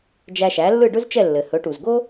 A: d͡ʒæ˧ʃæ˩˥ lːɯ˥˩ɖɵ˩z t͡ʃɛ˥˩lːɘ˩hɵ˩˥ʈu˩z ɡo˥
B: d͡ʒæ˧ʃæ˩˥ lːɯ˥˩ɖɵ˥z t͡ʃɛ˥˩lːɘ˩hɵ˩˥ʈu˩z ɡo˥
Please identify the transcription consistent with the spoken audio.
B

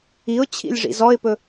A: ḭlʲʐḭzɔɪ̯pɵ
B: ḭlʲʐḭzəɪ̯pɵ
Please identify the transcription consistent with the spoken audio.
A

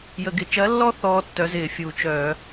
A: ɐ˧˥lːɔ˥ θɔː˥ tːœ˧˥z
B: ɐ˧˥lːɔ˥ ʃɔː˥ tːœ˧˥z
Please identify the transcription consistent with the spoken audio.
A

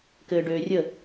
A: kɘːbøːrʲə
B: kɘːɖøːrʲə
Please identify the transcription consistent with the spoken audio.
B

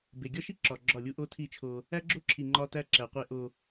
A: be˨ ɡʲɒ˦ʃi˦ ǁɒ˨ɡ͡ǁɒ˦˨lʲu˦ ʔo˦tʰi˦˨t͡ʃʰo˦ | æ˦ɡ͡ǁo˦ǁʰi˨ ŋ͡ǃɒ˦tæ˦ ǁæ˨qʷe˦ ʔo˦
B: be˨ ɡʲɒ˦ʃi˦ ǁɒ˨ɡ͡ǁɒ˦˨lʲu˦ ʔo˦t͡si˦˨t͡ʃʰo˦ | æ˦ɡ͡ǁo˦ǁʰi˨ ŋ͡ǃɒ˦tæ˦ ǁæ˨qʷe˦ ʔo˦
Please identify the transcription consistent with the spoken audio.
A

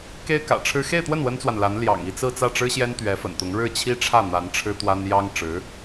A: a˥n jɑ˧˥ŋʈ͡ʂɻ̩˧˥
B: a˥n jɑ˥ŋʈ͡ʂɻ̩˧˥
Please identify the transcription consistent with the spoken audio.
B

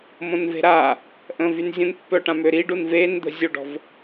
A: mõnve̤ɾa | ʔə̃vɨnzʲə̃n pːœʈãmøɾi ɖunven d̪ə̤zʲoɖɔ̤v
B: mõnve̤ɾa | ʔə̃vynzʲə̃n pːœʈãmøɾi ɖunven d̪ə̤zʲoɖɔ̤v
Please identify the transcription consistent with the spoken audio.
B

